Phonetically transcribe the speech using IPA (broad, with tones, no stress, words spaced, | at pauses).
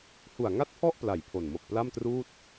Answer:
hu˨˩a̯ŋa˥˩t̚pʰɔ˥˩ʔpla˩˦j pʰo˨˩n mo˨˩k̚pla˥˩mtruː˥˩t̚